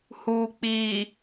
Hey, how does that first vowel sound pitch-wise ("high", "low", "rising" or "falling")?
low